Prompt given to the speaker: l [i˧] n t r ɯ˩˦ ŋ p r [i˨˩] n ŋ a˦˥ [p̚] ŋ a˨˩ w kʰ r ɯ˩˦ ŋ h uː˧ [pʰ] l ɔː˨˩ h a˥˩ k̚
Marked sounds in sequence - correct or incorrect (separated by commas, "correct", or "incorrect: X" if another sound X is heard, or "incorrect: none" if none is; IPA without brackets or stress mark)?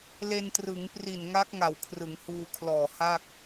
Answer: incorrect: e˧, correct, incorrect: k̚, incorrect: kʰ